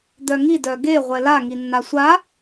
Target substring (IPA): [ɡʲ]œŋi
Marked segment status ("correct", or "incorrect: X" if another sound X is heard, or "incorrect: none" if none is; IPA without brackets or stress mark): incorrect: d̪